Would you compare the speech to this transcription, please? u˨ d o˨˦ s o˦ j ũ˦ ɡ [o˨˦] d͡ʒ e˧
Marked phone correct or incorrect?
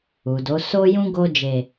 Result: incorrect